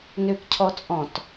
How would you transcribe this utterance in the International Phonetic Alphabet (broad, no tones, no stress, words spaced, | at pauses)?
nøkcʰɔt͡sʼɔ̃t